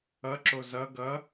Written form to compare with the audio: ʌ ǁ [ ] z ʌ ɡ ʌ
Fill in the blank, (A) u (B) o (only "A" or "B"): B